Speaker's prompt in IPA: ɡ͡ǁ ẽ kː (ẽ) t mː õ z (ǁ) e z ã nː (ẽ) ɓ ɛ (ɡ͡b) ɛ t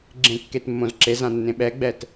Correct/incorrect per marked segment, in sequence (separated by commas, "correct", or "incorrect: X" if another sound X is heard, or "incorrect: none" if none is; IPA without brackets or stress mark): incorrect: e, correct, correct, correct